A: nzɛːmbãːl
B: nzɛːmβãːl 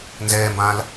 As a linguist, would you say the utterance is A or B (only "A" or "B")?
A